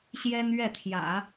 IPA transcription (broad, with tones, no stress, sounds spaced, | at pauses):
ɕ j ɛ˥ n ɥ ɛ˥˩ t̪ʰ j ä̰˨˩˦